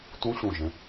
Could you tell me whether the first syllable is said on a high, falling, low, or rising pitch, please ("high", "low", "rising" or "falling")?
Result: rising